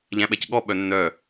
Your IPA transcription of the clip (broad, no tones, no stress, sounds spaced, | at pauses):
ʎ æ̃ ɓ ɛ c ɠ ɔ ɓ œ nː œ